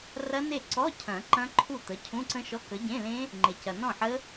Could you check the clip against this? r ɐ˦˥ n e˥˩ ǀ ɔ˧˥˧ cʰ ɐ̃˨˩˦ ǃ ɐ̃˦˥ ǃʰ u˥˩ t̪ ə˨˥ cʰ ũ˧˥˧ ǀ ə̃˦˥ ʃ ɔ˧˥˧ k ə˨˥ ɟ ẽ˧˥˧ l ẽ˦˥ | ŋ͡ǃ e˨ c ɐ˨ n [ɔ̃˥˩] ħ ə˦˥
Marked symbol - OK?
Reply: yes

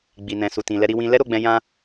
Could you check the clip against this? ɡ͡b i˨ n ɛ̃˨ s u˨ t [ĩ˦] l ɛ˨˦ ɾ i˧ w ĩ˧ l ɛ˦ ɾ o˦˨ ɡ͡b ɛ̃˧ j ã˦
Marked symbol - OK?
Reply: no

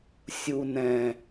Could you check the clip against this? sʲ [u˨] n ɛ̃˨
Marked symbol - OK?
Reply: yes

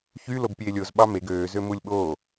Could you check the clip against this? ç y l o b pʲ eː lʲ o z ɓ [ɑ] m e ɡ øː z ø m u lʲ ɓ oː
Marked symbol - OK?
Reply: yes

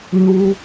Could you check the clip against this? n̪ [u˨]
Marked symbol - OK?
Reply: no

